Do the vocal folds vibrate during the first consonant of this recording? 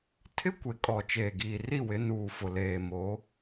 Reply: no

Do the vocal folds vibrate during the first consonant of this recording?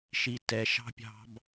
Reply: no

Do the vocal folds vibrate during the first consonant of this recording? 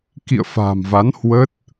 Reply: no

